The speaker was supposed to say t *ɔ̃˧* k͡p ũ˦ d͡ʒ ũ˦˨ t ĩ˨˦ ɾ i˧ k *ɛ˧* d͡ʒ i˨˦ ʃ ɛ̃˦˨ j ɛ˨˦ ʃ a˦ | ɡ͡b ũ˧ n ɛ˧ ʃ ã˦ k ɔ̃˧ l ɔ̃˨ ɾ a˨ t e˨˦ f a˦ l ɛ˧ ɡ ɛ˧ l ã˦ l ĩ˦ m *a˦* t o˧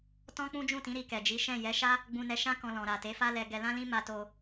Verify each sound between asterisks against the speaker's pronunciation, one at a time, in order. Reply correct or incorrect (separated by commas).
incorrect, incorrect, incorrect